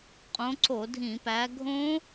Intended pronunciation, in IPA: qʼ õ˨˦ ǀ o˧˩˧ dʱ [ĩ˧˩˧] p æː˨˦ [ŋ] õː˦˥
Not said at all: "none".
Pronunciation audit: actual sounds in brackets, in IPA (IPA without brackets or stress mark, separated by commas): ĩ˧˩˧, ɡʱ